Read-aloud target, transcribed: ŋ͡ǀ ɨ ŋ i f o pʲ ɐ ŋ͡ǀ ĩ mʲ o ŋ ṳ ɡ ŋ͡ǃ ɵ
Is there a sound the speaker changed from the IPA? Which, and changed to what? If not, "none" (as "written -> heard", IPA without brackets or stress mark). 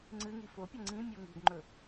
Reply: none